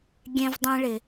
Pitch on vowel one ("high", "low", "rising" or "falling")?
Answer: high